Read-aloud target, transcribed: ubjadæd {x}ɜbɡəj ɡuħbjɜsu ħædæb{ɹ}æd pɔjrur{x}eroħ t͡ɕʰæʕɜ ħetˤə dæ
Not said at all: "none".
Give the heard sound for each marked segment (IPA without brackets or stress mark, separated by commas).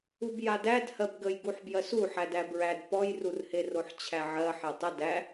h, ɹ, h